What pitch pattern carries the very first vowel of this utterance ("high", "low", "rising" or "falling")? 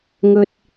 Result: low